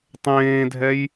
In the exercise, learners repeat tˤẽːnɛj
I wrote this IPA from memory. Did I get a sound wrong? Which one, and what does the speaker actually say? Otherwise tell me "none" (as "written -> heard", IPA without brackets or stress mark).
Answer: n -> dʱ